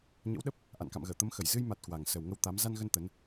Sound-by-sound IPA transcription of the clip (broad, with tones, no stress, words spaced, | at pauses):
ɲə̰˧˥wɗə˦˥p̚ | ʔa̰˧˨nka̰˧˨mɣəː˧˩ t̪ə˨˦mxə˧˩j zɨ˧jma˨˩t̚ kwa˨˩ŋ sə˨˩wŋə˧w t̪a˨˦m za˧nɣə˧n t̪ə˨˦n